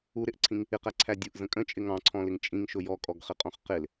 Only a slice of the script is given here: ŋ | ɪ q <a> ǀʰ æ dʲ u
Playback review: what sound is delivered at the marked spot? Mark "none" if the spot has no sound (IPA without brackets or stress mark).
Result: æ